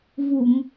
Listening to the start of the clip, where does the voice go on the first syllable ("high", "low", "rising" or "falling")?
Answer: low